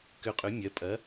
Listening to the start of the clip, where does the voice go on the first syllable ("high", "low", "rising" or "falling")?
rising